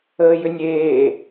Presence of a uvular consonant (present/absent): absent